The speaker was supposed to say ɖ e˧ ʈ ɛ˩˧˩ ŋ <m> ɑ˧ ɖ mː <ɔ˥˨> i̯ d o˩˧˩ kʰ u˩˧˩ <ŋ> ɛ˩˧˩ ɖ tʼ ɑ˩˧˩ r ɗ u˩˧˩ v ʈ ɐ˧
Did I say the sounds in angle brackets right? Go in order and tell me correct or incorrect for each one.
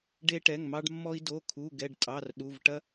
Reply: correct, incorrect, incorrect

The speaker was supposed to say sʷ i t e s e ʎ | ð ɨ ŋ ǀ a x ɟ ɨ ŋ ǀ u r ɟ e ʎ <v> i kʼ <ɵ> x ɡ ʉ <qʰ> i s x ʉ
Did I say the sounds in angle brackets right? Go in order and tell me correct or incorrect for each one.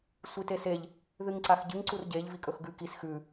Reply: correct, correct, incorrect

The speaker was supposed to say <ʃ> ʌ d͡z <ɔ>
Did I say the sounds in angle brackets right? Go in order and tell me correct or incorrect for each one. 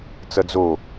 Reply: incorrect, incorrect

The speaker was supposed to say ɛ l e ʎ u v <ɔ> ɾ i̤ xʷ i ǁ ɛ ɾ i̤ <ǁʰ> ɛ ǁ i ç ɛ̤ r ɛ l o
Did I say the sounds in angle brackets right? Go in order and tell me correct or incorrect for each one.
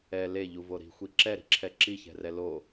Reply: incorrect, correct

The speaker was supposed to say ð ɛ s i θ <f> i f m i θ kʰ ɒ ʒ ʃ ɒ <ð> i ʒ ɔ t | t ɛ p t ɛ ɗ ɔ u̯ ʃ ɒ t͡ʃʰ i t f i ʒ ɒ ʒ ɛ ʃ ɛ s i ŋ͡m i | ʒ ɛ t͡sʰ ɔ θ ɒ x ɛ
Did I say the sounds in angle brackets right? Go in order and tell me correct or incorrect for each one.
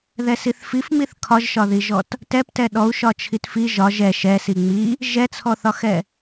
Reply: correct, correct

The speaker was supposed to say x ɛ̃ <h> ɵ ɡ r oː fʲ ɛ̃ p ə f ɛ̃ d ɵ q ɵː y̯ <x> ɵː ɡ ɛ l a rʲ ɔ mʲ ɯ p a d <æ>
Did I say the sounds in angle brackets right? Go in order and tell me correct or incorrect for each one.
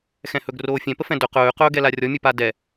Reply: correct, incorrect, incorrect

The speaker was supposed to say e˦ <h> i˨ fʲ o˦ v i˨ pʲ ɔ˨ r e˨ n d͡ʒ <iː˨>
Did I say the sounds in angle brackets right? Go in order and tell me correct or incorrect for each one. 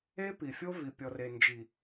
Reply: incorrect, incorrect

